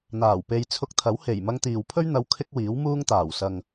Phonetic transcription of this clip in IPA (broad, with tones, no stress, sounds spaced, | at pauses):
n̪ aː˨˩ w p e˧ j t͡sʰ ʊ˧ k̚ t̪ʰ ɐ˨˥ w h e˨˩ j m ɐ˧ ŋ t̪ iː˨ w pʰ ɵ˥ ɥ n̪ ɐ˧ w kʰ ɪ˥ k̚ w iː˨˥ w m uː˥ ŋ t̪ aː˨˩ w s ɐ˨ ŋ